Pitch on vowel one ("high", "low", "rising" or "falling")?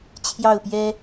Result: falling